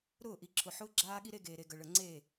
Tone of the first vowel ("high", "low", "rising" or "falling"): falling